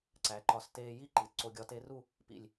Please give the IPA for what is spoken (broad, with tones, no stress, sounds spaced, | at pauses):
ǀ æ˩˧ ǃ ɒ˧˩ s t eː˧ j i˥˧ ǃ i˩˧ t ǀ o˧ ɡʲ ɒ˧ t e˧ r u˥˧ | p ḭ˧˩ lʲ